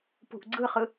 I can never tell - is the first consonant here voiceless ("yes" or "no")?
yes